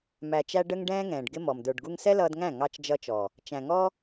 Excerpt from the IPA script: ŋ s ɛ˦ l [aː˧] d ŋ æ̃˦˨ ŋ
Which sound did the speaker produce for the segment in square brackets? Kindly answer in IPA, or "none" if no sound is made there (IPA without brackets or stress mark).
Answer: ʌː˧